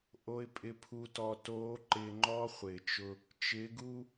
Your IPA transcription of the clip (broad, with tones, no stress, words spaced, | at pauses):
ʔo˨ɪ̯pʼɪ˨pʰu˨tɔ˨ toː˨˦ǃɪː˨ŋ͡ǃɔ˦ χʷɪː˨t͡ʃʊ˦ | t͡ʃɪː˨˦ɡuː˦